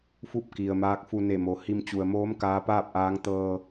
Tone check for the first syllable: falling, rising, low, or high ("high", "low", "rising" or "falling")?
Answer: falling